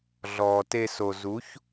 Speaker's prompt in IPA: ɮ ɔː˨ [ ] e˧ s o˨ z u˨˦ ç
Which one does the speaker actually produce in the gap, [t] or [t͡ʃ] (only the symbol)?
t